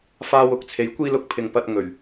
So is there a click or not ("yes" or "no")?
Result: no